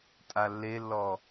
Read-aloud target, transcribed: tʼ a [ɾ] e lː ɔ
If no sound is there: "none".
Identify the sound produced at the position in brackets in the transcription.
lː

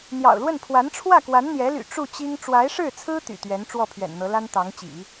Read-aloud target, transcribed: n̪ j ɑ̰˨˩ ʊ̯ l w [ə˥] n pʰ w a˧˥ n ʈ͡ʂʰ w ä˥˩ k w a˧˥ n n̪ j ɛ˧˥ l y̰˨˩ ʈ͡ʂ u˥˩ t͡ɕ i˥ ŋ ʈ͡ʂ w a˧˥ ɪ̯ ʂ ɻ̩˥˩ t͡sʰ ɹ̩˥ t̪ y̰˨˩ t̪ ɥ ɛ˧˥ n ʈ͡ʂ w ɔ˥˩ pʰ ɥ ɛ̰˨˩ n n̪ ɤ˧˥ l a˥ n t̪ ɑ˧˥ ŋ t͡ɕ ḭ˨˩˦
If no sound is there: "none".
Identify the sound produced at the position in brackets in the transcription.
ə˥˩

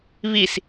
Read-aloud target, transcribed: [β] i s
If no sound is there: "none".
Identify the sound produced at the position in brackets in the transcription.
β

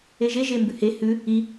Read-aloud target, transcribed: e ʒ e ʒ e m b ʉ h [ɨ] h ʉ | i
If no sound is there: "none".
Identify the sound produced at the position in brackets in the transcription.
e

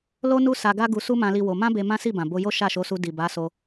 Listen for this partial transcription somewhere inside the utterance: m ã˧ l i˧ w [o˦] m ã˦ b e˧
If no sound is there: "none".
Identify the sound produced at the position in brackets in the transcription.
o˧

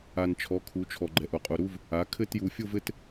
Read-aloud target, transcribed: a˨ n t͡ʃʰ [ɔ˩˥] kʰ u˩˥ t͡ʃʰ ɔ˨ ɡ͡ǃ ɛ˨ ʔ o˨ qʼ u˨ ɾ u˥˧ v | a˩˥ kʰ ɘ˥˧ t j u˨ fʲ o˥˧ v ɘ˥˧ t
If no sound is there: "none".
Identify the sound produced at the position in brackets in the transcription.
ɔ˩˥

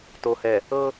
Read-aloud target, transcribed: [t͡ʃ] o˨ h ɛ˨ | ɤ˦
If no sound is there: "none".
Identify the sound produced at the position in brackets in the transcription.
t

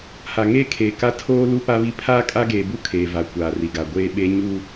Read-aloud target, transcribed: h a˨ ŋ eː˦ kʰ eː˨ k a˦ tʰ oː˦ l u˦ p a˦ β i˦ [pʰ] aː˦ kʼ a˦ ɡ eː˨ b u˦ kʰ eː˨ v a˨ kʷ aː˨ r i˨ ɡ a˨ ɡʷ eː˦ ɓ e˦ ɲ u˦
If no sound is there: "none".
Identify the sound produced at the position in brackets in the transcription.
pʰ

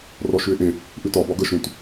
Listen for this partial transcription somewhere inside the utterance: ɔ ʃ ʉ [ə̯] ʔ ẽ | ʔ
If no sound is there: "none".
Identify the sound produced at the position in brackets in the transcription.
ɪ̯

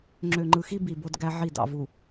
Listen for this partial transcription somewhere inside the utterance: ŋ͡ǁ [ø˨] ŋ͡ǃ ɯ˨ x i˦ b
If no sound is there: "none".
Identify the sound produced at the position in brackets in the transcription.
ø˨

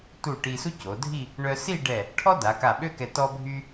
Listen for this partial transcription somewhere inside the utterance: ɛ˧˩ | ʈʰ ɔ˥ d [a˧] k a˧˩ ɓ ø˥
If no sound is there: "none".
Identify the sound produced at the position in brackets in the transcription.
a˩˧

